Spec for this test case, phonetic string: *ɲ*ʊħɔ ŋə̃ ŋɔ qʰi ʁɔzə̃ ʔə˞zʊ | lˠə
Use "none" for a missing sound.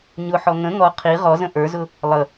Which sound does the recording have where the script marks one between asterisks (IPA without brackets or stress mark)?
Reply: ɲ